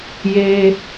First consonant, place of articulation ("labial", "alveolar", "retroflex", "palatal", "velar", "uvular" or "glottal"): palatal